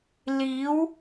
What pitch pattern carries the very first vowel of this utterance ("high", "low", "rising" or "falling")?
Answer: rising